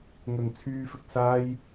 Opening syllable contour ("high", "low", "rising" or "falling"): low